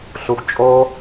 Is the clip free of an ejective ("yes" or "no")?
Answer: no